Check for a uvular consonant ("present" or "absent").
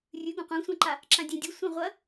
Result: present